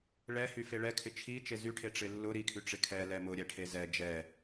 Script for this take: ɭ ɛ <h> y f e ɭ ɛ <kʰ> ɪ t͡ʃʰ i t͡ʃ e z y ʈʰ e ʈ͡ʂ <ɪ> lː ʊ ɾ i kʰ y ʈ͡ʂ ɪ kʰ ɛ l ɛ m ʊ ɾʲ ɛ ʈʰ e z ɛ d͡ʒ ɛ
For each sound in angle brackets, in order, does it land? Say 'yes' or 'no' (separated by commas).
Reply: yes, yes, yes